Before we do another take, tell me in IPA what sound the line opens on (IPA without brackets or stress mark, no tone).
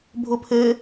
bʱ